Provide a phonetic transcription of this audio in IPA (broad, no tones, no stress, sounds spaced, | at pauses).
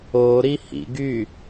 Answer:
o ɾ i h ḭ ɡ y